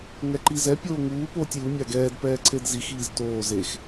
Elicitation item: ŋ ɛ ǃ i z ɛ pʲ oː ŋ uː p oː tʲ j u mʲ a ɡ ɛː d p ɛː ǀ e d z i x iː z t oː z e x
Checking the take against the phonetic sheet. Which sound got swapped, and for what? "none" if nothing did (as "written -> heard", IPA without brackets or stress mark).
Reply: none